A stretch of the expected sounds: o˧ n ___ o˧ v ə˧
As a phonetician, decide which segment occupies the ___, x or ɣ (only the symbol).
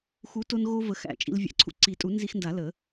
ɣ